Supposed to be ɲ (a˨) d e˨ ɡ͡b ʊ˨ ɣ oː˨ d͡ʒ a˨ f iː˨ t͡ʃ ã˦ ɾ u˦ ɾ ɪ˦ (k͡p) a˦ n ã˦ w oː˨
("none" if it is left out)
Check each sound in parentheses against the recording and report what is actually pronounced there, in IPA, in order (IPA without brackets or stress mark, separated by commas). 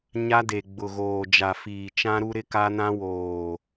a˦, k